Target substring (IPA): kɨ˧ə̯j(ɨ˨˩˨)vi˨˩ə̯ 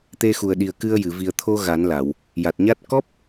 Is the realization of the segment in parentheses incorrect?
no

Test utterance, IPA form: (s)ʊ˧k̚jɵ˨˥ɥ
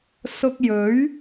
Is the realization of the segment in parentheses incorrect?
no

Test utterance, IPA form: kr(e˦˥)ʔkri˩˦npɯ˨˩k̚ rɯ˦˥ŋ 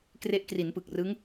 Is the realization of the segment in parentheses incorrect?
no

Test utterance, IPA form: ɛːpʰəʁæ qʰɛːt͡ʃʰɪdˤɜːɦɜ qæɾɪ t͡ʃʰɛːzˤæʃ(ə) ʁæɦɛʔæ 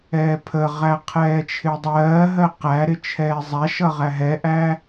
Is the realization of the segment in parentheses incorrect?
yes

